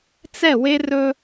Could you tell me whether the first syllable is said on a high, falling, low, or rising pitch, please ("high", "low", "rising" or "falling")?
falling